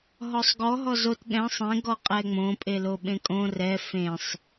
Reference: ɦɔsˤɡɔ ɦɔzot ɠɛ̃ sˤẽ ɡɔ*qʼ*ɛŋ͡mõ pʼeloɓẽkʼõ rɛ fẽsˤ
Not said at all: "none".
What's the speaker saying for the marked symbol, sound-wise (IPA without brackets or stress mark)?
qʼ